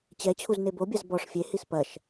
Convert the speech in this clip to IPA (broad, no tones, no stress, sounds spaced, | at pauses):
t͡ɕ ɛ t͡ɕʰ u z n e b o bʲ a z b ɔ ʂ fʲ e h i s p ɐ ʃ